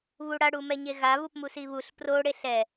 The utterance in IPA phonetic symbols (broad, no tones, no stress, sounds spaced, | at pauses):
β u ɽ a ɽ u m ɛ ɲ e ɣ a β u p m u s i β u ɬ p r o ɽ e ɬ ɛ